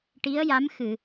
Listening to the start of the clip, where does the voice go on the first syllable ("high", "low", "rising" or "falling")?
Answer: rising